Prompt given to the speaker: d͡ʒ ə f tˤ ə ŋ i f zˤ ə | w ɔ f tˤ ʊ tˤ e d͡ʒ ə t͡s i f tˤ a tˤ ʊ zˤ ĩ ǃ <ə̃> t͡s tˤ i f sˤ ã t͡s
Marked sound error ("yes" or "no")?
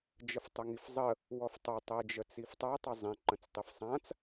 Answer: no